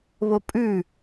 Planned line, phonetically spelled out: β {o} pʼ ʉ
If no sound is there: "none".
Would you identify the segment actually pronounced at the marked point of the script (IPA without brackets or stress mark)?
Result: o